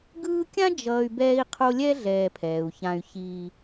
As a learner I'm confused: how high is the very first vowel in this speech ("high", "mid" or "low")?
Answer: high